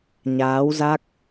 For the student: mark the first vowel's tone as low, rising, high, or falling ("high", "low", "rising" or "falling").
rising